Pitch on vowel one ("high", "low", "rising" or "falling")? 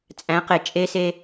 rising